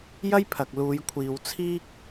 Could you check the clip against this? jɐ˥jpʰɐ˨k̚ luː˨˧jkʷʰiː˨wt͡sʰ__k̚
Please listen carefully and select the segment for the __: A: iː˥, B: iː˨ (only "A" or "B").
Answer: A